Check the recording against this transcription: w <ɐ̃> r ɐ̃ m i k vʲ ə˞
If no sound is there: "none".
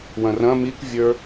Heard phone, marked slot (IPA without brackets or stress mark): ɐ̃